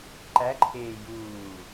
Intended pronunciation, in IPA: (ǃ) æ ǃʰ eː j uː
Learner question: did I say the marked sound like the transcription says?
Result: yes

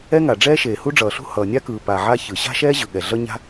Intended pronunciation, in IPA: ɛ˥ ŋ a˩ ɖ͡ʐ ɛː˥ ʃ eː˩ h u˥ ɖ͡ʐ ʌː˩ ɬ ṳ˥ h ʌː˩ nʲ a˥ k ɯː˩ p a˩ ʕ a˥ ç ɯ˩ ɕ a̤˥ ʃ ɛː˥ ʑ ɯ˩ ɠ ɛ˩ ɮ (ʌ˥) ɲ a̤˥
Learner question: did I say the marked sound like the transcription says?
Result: yes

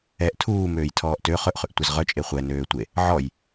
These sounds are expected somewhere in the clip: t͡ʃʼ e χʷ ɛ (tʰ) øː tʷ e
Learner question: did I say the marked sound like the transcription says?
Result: no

